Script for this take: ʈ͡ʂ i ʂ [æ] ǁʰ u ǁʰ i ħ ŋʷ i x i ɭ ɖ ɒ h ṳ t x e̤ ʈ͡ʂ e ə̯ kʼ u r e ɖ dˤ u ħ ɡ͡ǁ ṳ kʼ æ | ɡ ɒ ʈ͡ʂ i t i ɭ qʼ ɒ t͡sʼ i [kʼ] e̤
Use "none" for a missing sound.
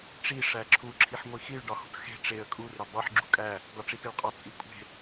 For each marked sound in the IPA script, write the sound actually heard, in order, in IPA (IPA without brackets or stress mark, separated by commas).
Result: æ, kʷʼ